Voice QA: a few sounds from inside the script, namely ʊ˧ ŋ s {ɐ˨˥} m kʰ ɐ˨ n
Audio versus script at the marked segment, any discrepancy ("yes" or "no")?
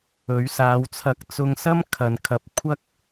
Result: yes